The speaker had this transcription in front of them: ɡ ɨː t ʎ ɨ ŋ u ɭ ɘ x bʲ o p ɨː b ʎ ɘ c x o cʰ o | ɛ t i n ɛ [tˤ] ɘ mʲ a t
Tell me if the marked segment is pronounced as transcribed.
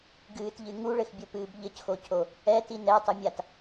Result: yes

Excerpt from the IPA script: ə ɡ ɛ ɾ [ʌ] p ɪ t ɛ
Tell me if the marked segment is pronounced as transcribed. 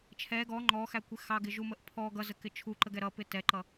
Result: yes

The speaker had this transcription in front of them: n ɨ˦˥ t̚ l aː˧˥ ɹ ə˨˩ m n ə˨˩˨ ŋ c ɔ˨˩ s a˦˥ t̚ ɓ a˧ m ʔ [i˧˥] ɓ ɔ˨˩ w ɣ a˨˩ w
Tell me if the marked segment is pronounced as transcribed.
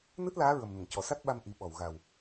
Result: no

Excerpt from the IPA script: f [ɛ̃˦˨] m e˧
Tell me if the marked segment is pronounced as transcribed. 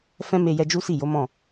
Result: no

